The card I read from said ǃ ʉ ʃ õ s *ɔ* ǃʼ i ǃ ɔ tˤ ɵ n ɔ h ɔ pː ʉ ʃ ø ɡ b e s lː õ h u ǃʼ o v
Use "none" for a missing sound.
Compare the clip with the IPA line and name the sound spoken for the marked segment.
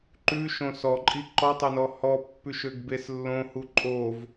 ɔ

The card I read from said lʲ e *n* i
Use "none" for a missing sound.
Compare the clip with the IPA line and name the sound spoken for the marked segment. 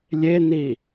n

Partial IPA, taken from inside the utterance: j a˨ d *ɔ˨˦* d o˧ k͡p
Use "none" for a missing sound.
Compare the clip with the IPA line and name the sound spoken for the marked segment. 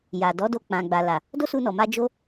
ɔ˨˦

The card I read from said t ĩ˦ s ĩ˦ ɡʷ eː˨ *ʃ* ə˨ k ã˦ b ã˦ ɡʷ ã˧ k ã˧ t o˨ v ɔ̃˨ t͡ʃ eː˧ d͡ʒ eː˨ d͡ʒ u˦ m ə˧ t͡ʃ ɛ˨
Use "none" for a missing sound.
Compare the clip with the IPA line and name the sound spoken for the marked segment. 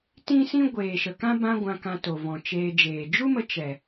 ʃ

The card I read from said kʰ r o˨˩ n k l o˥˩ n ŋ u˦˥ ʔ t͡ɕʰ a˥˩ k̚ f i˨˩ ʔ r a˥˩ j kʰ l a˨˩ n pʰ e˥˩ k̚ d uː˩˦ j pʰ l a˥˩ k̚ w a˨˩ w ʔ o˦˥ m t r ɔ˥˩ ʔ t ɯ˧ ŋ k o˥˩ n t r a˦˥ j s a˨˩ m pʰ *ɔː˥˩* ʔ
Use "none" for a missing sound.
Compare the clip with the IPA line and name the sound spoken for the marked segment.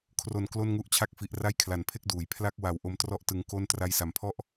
ɔ˥˩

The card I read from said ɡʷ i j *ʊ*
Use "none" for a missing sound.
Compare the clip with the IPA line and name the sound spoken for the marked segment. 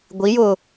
ʊ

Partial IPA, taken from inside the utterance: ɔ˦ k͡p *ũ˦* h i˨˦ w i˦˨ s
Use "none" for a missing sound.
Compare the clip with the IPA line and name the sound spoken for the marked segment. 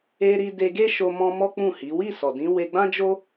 ũ˦˨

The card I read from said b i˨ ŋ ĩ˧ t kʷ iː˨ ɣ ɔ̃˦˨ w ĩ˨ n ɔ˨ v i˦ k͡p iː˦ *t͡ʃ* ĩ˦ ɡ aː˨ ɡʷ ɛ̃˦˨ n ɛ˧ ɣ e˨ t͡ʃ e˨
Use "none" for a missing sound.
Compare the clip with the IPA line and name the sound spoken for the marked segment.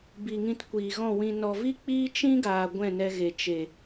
t͡ʃ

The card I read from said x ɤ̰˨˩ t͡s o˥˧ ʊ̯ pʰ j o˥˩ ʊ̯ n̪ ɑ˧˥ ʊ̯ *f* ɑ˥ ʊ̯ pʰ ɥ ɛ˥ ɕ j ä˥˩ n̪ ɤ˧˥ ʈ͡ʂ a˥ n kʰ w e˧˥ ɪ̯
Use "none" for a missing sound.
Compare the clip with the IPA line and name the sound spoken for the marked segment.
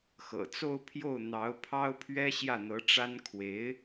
pʰ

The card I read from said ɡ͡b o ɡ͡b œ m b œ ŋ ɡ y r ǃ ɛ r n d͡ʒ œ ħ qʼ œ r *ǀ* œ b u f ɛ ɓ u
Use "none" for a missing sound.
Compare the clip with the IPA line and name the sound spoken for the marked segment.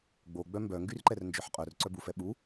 ǀ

